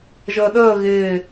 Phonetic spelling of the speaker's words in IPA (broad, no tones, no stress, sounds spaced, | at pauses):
ʒ əː ɗ əː ɣ ɪː